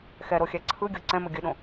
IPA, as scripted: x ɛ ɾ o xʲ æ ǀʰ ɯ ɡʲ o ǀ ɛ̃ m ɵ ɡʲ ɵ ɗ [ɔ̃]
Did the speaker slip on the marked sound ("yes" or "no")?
yes